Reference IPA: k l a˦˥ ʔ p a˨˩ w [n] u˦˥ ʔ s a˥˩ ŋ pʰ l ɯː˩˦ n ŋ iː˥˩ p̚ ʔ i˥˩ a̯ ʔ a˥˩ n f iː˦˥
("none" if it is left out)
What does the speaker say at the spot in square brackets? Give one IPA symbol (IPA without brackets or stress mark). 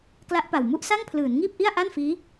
m